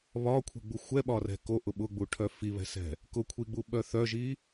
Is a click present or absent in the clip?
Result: absent